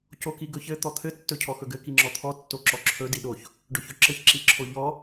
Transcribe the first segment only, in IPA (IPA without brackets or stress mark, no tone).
c